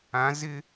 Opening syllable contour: rising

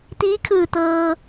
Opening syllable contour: rising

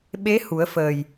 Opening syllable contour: rising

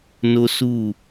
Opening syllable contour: high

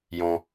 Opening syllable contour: low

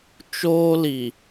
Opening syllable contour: high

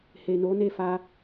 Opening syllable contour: low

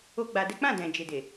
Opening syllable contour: high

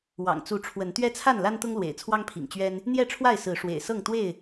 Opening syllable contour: low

